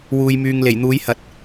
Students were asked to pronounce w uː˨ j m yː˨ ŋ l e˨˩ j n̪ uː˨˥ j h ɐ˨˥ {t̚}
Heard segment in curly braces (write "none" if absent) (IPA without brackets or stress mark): t̚